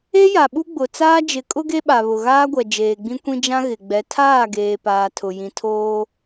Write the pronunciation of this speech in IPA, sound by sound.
e˦ja˨ɓu˦ ɡ͡bʊ˨ t͡saː˦d͡ʒɪ˨˦ kʼʊ˦ɡe˦ɓa˨ βʊ˨ɣaː˦ɡʷɛ˨ d͡ʒeː˨ɡ͡bĩ˦kʷĩ˦ d͡ʒã˦ɣɪ˨ɡ͡bɛ˨˦ tʰaː˦˨ɡeː˨paː˨ tʰʊ˨ jĩ˨tʰoː˦

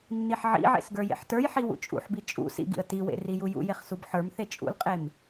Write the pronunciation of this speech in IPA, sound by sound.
nːiħʕḭʕḛs ɡə˞jḛħtə˞jħi wṵt͡ʃʼṵħbi t͡ʃʼṵ sḭɡḭə̯ tiwḛ rijujṵjeχ subħə˞mθe t͡ʃʼṵlqʼem

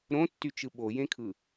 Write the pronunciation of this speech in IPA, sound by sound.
ɾõtːyt͡ʃɯ ɓojẽkʰɯ

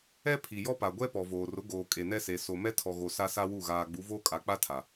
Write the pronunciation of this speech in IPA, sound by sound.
ɛ˦pʰi˨ jɔ˦pa˨ɡʷɛ˦ pɔ˨voː˨ rʊ˨˦ ɡoː˨ kʼe˨nɛ˦se˨ so˨mɛ˦tʰɔ˨ɣo˨ sa˦sa˦wu˦˨ ɣaː˨ɡ͡bu˨˦voː˦ kʼa˨k͡pa˦tʰa˨

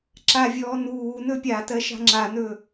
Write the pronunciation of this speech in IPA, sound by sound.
ǁavʲɔː nuː nɵpʲatɜ ʃa̤ŋ͡ǁanɵ

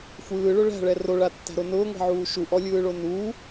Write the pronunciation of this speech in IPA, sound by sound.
xʷɯːɭʊ ɭæ̤ɭɛ roɭatːæ̤ɾo nʊːŋʷɛ̤ʕuː ʃuʔɔlʲɯːɭo nuː

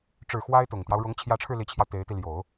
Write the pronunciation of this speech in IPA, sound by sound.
ʈ͡ʂɻ̩˨˩ xwa˥ɪ̯t̪ʊ˨˩ŋt̪jɑ˦ʊ̯ ɻʊ˧˥ŋt͡ɕʰjä˧˥ʈ͡ʂʰɻ̩˧ li˧˥t͡ɕʰjɑ˧ʊ̯ t̪e˧˥ɪ̯t̪i˧ ljo˨˩˦ʊ̯

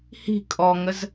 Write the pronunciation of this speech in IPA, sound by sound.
hi̤ kʼɔŋəz

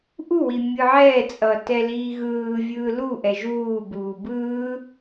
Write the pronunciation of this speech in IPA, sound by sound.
ʔuwi mʲɯʕɛːt͡sʼʌː tɛliːɣɯːvʲɯː luʔɛ ʒuːbuː bɯː

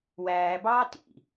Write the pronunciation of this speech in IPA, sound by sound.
wæːbɑː tḭ

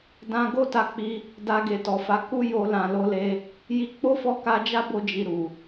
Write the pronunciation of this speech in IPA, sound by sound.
dã˧ ɡo˦ta˧k͡pi˧ | da˧ɡe˨tɔ˨fa˨˦ ku˦jo˧ lã˨lo˧le˧ | ji˧ k͡po˦fɔ˦˨ ka˧d͡ʒa˦bo˧d͡ʒi˨ ɾu˨

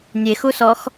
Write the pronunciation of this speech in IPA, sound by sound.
nʲexusɔx

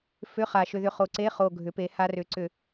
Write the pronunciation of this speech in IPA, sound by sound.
fʏ˧˥˧χa˨˩ʃʏ˧ðʏ˧ χo˨˩ǀe˧˥˧ χo˨˩ɡʱʏ˩˧pe˩˧ ha˧rʏ˩˧ǀʏ˧˩˧

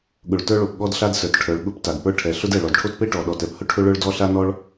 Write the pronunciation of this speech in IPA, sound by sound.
ɠʊ˩ɭtə˞˥ ɭo˩pɠɔ˥dɬa˥d sə˞˩tʈʰə˞˩ɭ ɠʊ˥pta˩dpə˞˥ ʈʰɛ˩ ɬʊ˥dɛ˩ ɭɔ˩dʈʰo˥tpe˥ʈɔ˩ ɗɔ˩tɛ˥p hʊ˥ʈʰʊ˥ ɭə˞˥ɭdɔ˥ ɬa˥nɔ˥ɭ

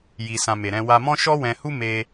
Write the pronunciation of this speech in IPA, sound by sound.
ji˨sã˨ me˨ɾɛ̃˧wa˧mɔ̃˦ ʃɔ˦wɛ̃˧hu˦ me˧

